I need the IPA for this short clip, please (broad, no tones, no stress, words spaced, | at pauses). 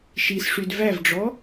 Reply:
ʃisʂyd vævɖ͡ʐɔ